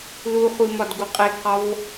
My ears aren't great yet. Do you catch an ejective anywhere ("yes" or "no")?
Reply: yes